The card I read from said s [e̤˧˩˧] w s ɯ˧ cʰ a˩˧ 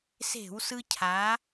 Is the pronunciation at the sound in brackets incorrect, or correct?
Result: correct